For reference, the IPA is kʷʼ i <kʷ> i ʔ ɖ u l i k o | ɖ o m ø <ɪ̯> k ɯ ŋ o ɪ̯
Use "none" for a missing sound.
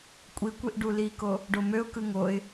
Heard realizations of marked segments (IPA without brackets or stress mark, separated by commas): kʷ, ʊ̯